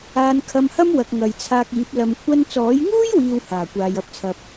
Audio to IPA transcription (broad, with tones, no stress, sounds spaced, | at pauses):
aː˧ n kʰ ɐ˧ m h ɐ˥ m w ɐ˨ k̚ ŋ ɐ˨ j t͡sʰ aː˧ k̚ iː˨˥ p̚ l ɐ˨ m kʷʰ ɐ˧ n t͡s ɔː˨˥ j ŋ uː˥ j w iː˨ w h aː˨˩ kʷ aː˨ j ɐ˨ p̚ t͡sʰ ɐ˨ p̚